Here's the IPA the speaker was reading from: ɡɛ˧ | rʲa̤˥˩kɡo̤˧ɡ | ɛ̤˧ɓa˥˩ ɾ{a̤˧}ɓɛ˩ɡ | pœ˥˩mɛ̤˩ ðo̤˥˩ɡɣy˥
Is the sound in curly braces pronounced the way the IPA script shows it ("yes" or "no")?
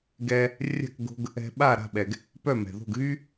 no